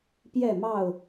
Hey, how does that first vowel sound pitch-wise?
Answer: falling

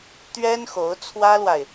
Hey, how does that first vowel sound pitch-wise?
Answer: high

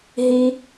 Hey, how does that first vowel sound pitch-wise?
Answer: high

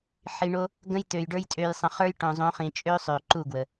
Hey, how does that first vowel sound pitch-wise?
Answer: low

